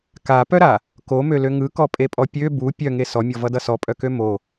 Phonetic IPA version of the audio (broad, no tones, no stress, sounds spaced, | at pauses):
k a p œ ɾ a | k o m ø l ø ŋ ɯ k ɔ pʼ e pʼ ɔ pʲ ø b u pʲ œ ŋ e s ɔ mʲ ɔ v ʌ d ʌ s ɔ pʼ œ k ø m o